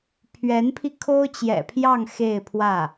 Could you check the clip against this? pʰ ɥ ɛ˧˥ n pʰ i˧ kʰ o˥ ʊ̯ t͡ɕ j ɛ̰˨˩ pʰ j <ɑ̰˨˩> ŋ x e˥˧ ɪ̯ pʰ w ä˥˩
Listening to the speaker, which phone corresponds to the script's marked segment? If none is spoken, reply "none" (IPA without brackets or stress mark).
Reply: ɑ˥˧